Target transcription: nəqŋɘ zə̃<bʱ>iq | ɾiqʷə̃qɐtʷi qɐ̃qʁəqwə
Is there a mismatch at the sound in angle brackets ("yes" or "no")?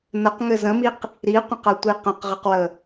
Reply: yes